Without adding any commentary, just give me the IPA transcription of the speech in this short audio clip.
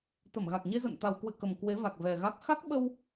t̪ə˧˩mɣa˨˩k̚ɲe˧zə̰˧˨n t̪a˨˩wkwɨ̰˧˨kə˨˩m kwe˨˦va˨˩k̚vɛ˨˩ɣa˦˥k̚ xa˦˥k̚ɓə˧w

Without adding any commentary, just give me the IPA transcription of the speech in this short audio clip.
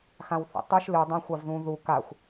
xãwθḭtˤɨʃ lɨ dˤãxʷavðũ ðu kaxʷ

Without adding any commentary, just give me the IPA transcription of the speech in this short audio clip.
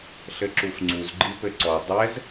ɬɘǁufŋ͡ǀuz ɡ͡ǃipɘǀɔ dˤɛz

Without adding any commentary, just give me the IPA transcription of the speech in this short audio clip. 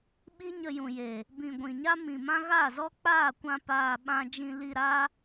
ɓi˦ɲə˧jũ˨jeː˨ | bĩ˨ ɡʷĩ˨ɲa˦mĩ˨mã˦ ɣa˦˨zɔ˦k͡paː˦˨kʷã˧ paː˨ ɓã˧d͡ʒĩ˧li˧ ɾaː˦

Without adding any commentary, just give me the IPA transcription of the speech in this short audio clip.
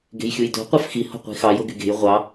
ɡe̤jxʲujdo̤ qʷɑfxi ho̤qʷi̤xɑj oɡyɡe̤j ʁʷɑ

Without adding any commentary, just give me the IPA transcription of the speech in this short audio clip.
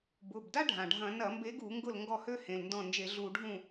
bʊ˩˧˩b da˥ɖʱã˩ɖʱɐ̃˧˩˧ nɐ˧˩˧mbe˨˦ɡu˧˩˧ ŋɡʊ˥˩lŋɡɔ˥˩ hø˥ hẽ˩˧˩lndɔ̃˥˩ nd͡ʒe˧˩˧ɮu˧˩˧ɖʱũ˥˩

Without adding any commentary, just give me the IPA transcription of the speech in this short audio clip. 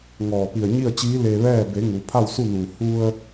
ŋɔː˧˩pi˧˩ə̯ɲi˥˨ə̯t͡ɕiː˧˥ le˧ʋɛː˥˨ be˩˧ ŋu˩˧pʰa˥˨wsu˥˨nuː˧˩ hu˧ə̯

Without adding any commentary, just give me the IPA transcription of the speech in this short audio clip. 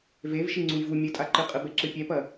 vevʃi ŋ͡ǀujvu mʲɨtʼaǃɨqʼɨ bɛǁɨpʲɛpɐ

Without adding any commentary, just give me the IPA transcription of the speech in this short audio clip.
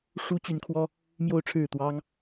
ʂu˥t͡ɕy˧˥nkʰwɔ˥ | mjo˥˧ʊ̯ʈ͡ʂʰɻ̩˥˩t̪wɑ˥ŋ

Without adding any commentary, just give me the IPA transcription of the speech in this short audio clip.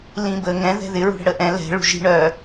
lĩbə ŋɛ̃ ðɛ̤ðɪ ɹṳɽə̤ɽəʔɛ̃ lɛ̤ ɭṳʒi̤ɳœ

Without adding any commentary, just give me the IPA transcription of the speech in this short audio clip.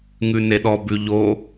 ŋʉneɗɔ bʉʎo

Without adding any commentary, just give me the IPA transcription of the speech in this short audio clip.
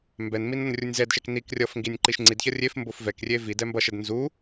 mbɛnmin ʌnrʲunʲzɛdʃɛk nik rʲʌfŋɡinʲ ǃiʃŋ͡ǀidçʌ rʲef mbofvɛkrʲe vidɛ mbʌʃɛd nzu

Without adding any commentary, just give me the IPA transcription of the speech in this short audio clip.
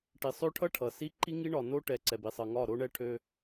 ʈi˨sˤø˦ʈʰʌ˦ ʈʰʌ˨si˦ ǃi˦ ŋi˦ɳɒ˨ no˦ʈɛ˨ ǀɛ˨bi˨sˤʌ˨ ŋɒ˦˨ɾo˦ɳɛ˦ʈʰø˦

